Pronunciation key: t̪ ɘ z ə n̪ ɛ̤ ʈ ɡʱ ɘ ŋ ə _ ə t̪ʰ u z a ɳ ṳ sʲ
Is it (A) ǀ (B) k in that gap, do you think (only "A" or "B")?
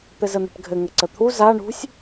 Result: A